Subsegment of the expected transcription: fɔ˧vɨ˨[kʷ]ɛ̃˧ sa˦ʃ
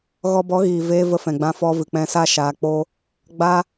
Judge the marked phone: incorrect: k͡p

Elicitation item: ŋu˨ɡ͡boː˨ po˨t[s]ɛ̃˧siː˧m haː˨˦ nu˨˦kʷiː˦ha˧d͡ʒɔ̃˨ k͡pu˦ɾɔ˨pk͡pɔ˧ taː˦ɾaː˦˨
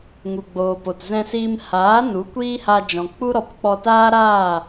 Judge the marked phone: incorrect: z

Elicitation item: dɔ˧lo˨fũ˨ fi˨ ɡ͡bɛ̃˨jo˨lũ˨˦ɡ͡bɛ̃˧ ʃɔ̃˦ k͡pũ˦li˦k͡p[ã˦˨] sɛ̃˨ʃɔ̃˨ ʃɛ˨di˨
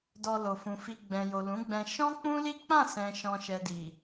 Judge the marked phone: correct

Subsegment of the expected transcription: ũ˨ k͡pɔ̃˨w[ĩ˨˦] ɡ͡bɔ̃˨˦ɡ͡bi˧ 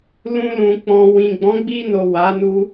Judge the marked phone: incorrect: ĩ˨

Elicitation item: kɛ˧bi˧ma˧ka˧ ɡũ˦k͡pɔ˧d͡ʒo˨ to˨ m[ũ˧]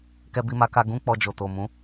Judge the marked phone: incorrect: ũ˨˦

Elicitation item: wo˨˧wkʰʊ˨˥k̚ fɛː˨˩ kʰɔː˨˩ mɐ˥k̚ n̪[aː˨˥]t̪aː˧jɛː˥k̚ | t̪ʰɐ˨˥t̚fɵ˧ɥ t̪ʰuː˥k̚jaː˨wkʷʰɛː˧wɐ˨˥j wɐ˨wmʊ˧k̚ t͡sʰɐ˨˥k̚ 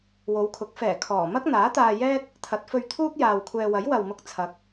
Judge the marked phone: correct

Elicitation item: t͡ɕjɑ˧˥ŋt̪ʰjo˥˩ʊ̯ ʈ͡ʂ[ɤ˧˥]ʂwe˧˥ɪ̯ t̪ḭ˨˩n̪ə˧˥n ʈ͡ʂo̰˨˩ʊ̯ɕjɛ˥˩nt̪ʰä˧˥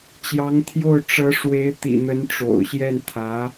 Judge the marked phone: correct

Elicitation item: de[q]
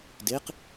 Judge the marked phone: correct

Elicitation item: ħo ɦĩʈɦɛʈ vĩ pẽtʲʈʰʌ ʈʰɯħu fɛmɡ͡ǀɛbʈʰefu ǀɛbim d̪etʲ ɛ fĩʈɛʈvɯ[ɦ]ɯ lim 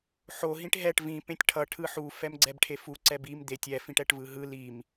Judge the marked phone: correct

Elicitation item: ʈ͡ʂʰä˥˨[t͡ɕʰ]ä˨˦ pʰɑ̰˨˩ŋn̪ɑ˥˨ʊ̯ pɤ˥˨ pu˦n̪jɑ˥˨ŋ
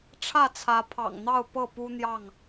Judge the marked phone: incorrect: t͡sʰ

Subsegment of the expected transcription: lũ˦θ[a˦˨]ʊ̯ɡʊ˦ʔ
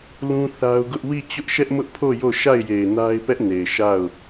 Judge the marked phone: incorrect: a˦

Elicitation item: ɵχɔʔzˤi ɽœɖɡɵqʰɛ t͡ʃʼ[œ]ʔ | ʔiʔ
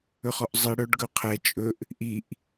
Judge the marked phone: incorrect: ɵ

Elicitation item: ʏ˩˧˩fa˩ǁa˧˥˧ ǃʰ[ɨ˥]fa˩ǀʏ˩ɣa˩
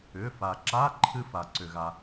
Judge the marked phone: correct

